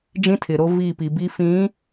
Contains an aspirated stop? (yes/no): yes